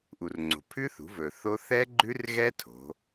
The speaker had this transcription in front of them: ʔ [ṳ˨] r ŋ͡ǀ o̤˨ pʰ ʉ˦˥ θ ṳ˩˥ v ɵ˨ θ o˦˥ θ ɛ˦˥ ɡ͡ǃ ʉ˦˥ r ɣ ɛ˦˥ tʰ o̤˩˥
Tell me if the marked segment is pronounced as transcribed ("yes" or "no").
no